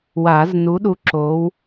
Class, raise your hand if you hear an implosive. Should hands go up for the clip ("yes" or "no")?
yes